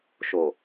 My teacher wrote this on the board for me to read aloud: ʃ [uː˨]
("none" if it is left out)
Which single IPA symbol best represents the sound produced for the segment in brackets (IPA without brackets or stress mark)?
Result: oː˨